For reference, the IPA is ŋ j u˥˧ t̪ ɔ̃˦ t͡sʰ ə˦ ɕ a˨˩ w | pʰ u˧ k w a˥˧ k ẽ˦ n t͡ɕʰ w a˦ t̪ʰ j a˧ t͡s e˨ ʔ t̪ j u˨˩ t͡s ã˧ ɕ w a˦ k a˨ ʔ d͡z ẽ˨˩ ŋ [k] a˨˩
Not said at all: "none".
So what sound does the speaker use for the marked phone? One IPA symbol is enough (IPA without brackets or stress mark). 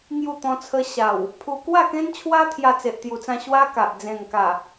k